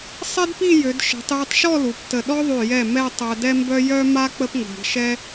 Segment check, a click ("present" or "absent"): absent